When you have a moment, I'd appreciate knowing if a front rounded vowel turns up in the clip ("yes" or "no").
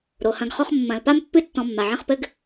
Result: no